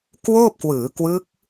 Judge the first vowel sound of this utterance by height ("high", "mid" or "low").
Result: mid